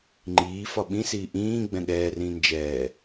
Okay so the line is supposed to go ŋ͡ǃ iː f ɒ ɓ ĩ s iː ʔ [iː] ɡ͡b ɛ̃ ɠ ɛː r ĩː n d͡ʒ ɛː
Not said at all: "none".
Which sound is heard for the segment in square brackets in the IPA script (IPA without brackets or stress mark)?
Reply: ĩː